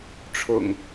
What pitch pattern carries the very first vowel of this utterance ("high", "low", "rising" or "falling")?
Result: low